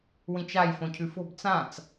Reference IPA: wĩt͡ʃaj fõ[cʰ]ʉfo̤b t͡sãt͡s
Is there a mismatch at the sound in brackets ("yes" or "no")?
no